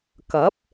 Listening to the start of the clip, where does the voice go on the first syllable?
rising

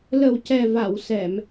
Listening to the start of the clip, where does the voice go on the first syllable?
low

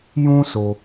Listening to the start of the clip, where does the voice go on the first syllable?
high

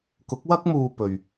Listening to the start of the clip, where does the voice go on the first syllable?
rising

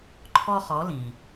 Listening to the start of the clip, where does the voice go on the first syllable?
high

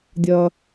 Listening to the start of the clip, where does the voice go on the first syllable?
low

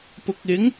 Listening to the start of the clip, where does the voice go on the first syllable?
low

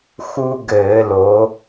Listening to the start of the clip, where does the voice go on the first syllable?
high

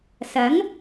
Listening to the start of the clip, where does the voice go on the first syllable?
rising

